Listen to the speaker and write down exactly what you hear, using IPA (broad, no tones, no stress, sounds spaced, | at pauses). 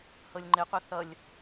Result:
h ɤ lʲ ŋ͡ǃ ɪ qʷ ʌ θ ʌ lʲ